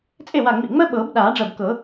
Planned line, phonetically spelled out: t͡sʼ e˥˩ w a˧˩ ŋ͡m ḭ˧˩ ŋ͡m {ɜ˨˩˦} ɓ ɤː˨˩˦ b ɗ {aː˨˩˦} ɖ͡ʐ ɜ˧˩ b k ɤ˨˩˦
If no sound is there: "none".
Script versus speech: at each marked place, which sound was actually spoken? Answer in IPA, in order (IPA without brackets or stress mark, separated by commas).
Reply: ɜ˥, aː˨˩˦